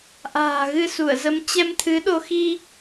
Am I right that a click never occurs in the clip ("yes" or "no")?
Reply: yes